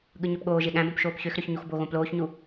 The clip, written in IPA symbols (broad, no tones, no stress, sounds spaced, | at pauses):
ɠ ɯ ɲ ø p ɠ oː ʒ e ɠ æ̃ b õ p ʃ oː p ç ø x ɾ ø ç ɲ u x b o ɣ õ p l oː ç ɲ u